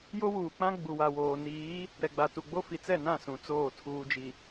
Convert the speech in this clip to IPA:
j o˦ w uː˨ k͡p ã˦ ɡ͡b u˨ w a˨ w oː˨ n iː˨˦ | ɾ ɛ˨ ɡ͡b a˨ t u˨ ɡ͡b o˦ f i˨ t͡s ɛ˦˨ n ã˦˨ s ũ˨ t͡s oː˦˨ tʰ uː˨ d͡ʒ i˨

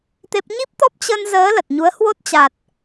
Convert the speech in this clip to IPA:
t̪ e˦˥ p̚ ɲ i˦˥ p̚ t̪ ɔ˦˥ p̚ t͡ɕ ə˧ n z əː˨˦ l ə˨˩ t̚ ɲ u˨˦ ə̯ h w o˦˥ t̚ t͡ɕ a˨˩ t̚

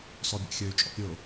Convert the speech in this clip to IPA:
s ɔ bʲ a̰ xʲ ø y̯ t͡ʃʼ ɔ̰ pʲ ʊ

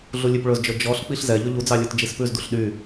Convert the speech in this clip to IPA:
ɮ u lʲ ʉ p ɭ ɵ z d͡ʒ ɵ d͡ʒ ɔ ɬ k͡p i ɬ z ɛ ʎ ɵ ʎ u d͡z ɑ lʲ u t d͡ʒ i s p ʉ z d u ɬ ɗ y

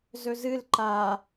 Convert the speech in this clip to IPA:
z ɵ z ɨ l ǃ a

